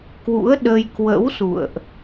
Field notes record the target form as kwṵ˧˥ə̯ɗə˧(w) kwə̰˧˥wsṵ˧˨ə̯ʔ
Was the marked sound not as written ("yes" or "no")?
yes